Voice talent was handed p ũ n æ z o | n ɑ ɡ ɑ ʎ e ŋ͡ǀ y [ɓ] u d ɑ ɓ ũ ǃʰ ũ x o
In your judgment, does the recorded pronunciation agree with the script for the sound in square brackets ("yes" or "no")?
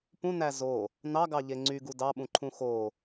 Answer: no